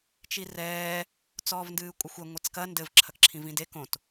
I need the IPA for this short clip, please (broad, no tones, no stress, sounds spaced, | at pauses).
t͡ʃ i r ɛː | t͡s ɔː v n d ɨː kʷʼ ɘ xʷ e ŋʷ e t͡s k ɐ n d ɘ v ǁʰ ɐ k ǁʰ ĩ v ĩ d e k õ t